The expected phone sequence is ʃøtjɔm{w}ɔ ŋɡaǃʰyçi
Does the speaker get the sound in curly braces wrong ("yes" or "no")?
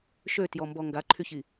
yes